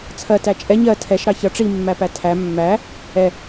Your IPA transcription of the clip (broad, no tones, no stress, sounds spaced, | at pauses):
t͡sʰ ɜ t æ t͡ʃʼ ɛ ɲ ɜ tʰ ɛ ʃ ɾ ɑ ç ʌ ʈ͡ʂ i mː æ p æ tʰ æ mː æ | ɛ